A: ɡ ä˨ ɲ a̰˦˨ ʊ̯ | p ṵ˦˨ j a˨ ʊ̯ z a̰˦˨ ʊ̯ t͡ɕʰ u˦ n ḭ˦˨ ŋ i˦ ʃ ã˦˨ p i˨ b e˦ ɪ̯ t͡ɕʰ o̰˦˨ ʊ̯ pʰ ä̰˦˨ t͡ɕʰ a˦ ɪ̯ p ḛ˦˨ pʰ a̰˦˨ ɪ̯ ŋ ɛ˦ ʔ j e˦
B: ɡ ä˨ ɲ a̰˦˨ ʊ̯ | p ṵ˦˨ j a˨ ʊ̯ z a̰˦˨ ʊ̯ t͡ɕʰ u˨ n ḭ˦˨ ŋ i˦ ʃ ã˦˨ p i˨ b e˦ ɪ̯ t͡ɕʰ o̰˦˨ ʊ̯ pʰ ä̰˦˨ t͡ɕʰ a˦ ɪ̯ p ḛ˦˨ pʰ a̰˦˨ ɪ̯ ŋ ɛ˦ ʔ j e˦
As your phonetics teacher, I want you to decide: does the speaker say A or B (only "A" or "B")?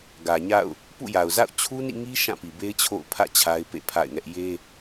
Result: A